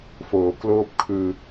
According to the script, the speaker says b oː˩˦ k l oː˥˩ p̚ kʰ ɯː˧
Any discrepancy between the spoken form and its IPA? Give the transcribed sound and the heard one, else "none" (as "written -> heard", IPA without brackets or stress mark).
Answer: b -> f